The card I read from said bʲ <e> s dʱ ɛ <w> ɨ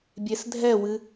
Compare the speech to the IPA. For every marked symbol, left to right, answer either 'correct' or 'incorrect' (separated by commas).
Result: correct, correct